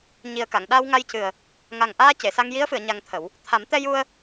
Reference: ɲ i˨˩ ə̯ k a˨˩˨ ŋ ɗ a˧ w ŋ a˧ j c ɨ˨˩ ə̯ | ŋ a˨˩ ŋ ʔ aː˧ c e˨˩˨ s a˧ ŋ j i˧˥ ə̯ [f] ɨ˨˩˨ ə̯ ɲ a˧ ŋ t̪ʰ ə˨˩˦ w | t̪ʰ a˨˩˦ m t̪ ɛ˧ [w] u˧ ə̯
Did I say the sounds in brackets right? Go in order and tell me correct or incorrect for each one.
correct, incorrect

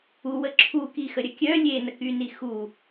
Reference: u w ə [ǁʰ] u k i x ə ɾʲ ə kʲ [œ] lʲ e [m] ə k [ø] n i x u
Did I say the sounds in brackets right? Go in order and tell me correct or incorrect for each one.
correct, correct, incorrect, incorrect

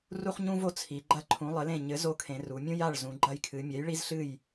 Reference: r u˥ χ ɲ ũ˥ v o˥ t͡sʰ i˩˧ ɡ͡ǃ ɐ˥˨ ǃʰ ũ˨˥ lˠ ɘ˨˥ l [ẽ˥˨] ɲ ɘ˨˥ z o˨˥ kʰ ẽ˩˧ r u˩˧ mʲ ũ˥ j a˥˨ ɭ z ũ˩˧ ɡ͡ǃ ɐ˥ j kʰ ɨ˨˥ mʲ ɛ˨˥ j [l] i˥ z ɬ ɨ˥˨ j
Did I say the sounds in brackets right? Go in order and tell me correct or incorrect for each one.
correct, incorrect

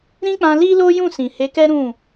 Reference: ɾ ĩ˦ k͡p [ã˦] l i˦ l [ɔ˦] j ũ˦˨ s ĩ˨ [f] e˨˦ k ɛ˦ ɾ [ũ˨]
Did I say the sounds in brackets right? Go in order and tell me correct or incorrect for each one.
incorrect, incorrect, incorrect, incorrect

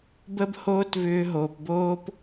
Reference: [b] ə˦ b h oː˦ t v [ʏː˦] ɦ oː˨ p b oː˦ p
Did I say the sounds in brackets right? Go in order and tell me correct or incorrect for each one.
correct, incorrect

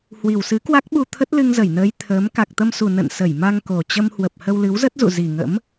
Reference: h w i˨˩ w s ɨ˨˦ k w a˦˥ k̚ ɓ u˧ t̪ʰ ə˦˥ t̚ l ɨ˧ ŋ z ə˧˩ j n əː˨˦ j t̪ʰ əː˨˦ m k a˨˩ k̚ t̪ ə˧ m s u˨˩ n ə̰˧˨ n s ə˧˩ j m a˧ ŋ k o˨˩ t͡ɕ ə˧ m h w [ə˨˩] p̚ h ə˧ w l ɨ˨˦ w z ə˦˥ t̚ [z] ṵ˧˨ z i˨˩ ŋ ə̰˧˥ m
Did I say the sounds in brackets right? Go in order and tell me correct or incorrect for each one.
correct, correct

